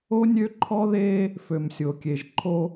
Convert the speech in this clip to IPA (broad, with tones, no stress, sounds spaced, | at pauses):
o˦ nʲ ø˦ ǃʰ ɔ˦ ð eː˦ | f ø˨ m sʲ o˨ kʲ e˨ ʒ ǃʰ o˦